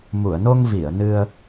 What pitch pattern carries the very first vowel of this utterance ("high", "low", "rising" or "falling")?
low